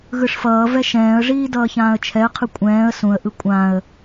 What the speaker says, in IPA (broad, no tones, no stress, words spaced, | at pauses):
ɣɯʂfʌːvɛ ʃɛ̃ːə̯ʐiː dʌːçãːə̯t͡ʃʰɛə̯qʰɯ kʷʼɛ̃ːə̯ sũə̯ʔɯ kʷʼãə̯